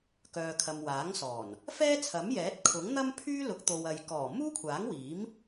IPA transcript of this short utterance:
k œː˨ kʰ ɐ˨ m w aː˨˥ ŋ s ɔː˨˩ n | f ɛː˥ t͡sʰ ɐ˨˥ m j ɛː˨˥ t̚ kʰ ʊ˨˥ ŋ n̪ ɐ˥ m pʰ yː˥ l ʊ˨˥ k̚ t̪ o˨ w ɐ˨ j k ɔː˨˩ m uː˥ kʷʰ aː˨˥ ŋ w iː˨˥ m

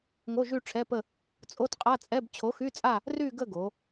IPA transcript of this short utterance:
ŋ o˧˥˧ ʒ y˥˧ ʈ͡ʂʰ ɛ˧˥˧ p ə˥˧ | t͡sʼ o˧˥˧ t qʼ a˧˥˧ t͡sʼ ɛ˧˥˧ b t͡ɕʰ o˨˥ x y˧˥˧ t͡sʼ a˥˧ | r y˥˧ ɡ ə˥˧ ɡ o˩˧

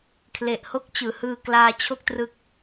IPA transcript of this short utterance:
kʰ l e˨˩ ʔ h o˦˥ k̚ t͡ɕ ɯː˩˦ h ɯː˧ k l aː˧ t͡ɕʰ o˥˩ k̚ t r ɯ˦˥ k̚

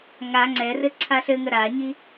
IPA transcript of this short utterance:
ŋ a ŋ͡ǀ ɛ r ɘ ǀʰ a ɬ ɘ ŋ ə ɾ a ɲ i

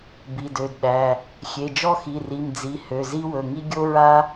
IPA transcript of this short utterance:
b i˩˧˩ d ø˩˧˩ d ɗ æ˩˧˩ | xʲ e˩˧˩ d͡ʒ ɔ˥ x i˩˧˩ r i˩˧˩ m d͡z i˩˧˩ h ø˩˧˩ z i˥ w ɵ˩˧˩ ŋ i˥ ɡʲ o˥ ɹ a˥

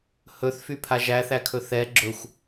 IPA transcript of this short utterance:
h ɵ θ f y pʰ a ʒ æ θ æ kʰ ɵ θ ɛ ɡ͡ǁ ɵ xʷ

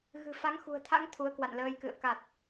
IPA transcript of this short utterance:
ɣ ɨ̤˨˩ f a˨˦ ŋ x ṳ˨˩ ə̯ t̪ʰ a̰˧˥ ŋ t̪ʰ u˨˦ ə̯ k w a̰˧˨ n l əː˧ j k ɨ̰˧˨ ə̯ k a˨˩ t̚

